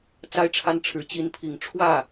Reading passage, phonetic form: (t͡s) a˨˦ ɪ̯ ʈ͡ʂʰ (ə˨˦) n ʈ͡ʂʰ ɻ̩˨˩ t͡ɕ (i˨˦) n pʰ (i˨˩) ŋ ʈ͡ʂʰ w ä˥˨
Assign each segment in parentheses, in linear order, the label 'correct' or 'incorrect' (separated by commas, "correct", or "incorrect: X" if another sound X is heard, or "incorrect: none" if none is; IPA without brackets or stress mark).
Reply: correct, incorrect: a˨˦, correct, correct